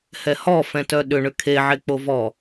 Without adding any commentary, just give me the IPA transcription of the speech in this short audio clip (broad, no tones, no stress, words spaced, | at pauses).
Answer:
hɛhɔ fɛ̃tœɗʏ ɳʏkʰe ʕek͡povɔ